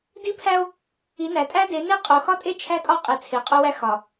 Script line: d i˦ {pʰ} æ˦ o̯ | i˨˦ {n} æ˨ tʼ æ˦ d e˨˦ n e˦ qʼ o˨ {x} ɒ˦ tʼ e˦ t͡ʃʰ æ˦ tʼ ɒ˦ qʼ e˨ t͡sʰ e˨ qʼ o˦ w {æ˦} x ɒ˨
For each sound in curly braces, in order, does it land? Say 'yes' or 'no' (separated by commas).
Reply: yes, yes, yes, yes